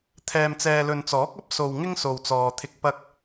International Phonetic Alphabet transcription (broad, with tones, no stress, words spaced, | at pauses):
t̪ʰɛː˨mt͡sɛː˨lɵ˨nt͡sɔː˨˥k̚ ɐ˥p̚so˨w ŋɪ˥ŋso˨wt͡sɔː˨t̪ʰɪ˧k̚ pɐ˧k̚